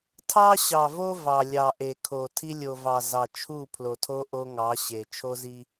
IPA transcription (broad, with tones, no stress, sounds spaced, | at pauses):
tʰ ɑ˦ ɕ ɑ˨ v o˦ v ɑ˨ lʲ ɑ˨ ʔ e˨ kʰ o˨ tʰ i˦ lʲ o˨ v ɑ˨ z ɑ˨ t͡ʃʰ u˦˨ pʰ l o˨ tʰ o˦ ʔ o˦ ŋ ɑ˨˦ ɕ e˨ t͡ʃʰ o˦ z i˦